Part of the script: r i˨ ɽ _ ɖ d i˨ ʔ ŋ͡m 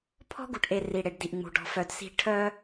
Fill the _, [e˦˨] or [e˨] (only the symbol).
e˨